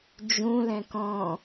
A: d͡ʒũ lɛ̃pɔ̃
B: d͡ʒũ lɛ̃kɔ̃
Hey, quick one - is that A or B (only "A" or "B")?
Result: B